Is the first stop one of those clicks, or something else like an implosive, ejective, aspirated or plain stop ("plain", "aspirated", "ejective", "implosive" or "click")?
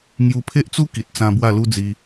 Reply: aspirated